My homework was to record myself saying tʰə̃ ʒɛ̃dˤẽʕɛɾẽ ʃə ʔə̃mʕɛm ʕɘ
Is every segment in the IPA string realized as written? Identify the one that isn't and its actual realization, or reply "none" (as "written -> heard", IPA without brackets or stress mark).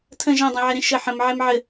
ʔ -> ħ